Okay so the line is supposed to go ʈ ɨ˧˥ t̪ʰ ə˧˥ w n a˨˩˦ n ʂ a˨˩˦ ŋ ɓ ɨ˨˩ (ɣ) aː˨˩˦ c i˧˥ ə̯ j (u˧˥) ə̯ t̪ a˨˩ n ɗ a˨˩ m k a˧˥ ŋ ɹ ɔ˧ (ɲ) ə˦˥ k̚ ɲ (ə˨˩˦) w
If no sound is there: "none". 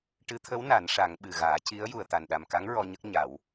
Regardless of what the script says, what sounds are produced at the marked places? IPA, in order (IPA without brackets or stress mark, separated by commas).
ɣ, u˨˩, ɲ, a˨˩˦